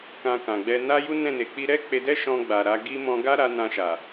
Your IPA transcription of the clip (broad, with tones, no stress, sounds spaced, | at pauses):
k ã˧ k ã˨ ɡ͡b ɛ˧ n a˦ j u˦ n ɛ̃˦˨ n e˨ k͡p i˧ ɾ ɛ˦ k͡p e˧ d ɛ˦ ʃ ɔ̃˧ ɡ͡b a˨ ɾ a˨˦ ɡ i˦ m ɔ̃˧ ɡ a˦ ɾ a˦ n ã˧ ʃ a˨